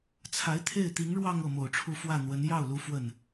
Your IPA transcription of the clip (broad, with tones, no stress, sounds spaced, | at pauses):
t͡sʰ a˧˥ ɪ̯ t̪ʰ e˥˩ ɪ̯ t̪ i˧˥ ŋ ɻ w ɑ˥˧ ŋ ɤ˥˩ m o˨˩ ʊ̯ ʈ͡ʂʰ u˥˧ f w ä˥˩ n̪ w ə˧˥ n j ɑ˥˩ ʊ̯ l u˧˥ f w ə˥˩ n